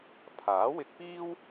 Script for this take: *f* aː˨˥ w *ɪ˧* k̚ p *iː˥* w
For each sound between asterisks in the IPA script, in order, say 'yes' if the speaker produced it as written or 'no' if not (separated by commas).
no, yes, yes